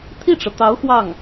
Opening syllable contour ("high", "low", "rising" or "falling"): falling